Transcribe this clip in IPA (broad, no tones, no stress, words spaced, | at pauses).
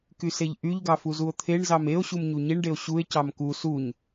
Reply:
kyseʎʔyʎɡɑ fuzuo̯t̪ʰeɳzɑm eo̯ɕum ɲuɲiɳɖeo̯ ɕue̯cɑm ku suɲ